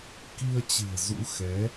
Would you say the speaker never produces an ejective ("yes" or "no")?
yes